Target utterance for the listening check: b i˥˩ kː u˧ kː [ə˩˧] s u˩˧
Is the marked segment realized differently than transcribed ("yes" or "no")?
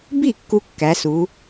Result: yes